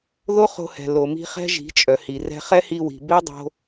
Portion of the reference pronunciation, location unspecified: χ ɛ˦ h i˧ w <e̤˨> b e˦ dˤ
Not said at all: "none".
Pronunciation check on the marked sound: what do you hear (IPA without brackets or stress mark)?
i̤˨